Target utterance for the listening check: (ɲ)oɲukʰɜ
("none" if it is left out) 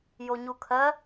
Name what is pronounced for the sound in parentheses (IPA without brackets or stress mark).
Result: j